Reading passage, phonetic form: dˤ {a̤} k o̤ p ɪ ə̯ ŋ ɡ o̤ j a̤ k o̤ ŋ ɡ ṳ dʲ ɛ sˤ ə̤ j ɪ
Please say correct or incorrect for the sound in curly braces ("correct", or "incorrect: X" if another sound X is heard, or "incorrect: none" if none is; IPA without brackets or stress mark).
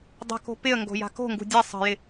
incorrect: ə̤